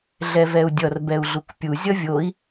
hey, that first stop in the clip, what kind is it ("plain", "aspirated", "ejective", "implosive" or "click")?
plain